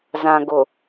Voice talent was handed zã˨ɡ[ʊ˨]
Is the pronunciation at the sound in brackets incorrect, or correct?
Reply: correct